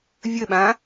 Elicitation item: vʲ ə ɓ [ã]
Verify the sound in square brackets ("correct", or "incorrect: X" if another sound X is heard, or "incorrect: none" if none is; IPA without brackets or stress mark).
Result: correct